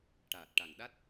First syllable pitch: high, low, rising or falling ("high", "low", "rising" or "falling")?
low